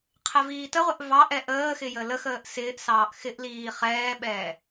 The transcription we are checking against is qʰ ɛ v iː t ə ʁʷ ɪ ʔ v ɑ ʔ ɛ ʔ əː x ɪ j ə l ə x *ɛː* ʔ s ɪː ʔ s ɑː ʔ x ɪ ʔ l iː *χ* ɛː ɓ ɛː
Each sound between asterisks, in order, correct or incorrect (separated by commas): incorrect, correct